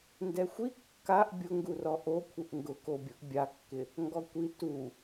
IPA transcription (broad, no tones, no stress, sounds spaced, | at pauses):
n d ɛ xʷ i kː a ʔ bʲ ʊ ŋ ɡ u r ɔ ʔ o kʷʰ ɪ ʔ ŋ ɡ ʊ k o bʲ ʊ ʔ bʲ a kː ɪ | ŋ ɡ ɔ kʷ i t u